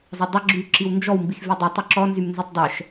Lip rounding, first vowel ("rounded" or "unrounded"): unrounded